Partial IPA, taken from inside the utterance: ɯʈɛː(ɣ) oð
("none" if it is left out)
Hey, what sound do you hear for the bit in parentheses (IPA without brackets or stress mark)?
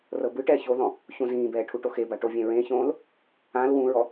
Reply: ç